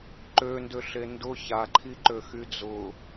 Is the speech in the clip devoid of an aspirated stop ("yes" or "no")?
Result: no